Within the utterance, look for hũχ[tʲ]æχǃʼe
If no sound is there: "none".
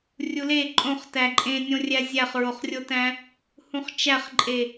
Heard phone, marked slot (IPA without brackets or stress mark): t͡ʃ